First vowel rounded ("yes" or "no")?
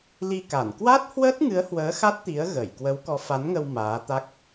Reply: no